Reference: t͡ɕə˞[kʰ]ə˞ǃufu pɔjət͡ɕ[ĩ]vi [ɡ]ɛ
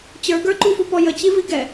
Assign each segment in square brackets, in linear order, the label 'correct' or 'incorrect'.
incorrect, incorrect, correct

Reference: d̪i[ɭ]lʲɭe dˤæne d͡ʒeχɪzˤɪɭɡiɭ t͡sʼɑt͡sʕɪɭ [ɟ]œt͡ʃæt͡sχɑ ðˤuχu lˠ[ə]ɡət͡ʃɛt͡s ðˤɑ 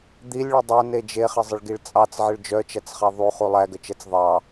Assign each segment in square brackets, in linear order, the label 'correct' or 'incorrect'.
incorrect, incorrect, incorrect

